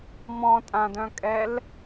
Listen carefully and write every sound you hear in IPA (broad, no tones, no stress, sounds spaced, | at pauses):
m ɔ̃ tʼ ã d œ̃ kʼ ɛ l